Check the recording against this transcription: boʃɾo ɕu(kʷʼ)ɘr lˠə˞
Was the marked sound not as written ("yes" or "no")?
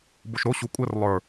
no